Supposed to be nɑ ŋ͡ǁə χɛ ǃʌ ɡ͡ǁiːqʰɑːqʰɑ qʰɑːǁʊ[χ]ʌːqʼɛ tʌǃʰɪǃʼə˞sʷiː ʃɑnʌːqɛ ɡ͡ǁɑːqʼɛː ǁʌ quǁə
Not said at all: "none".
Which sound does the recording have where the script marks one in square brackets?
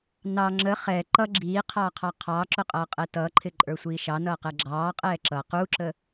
qʼ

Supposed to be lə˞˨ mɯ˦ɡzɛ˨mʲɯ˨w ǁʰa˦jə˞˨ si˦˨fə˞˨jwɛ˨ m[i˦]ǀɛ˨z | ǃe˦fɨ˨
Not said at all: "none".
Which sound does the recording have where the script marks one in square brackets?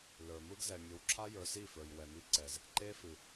i˦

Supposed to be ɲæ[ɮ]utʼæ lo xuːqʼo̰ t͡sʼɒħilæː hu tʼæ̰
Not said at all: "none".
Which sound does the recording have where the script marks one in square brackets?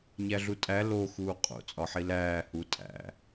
ɮ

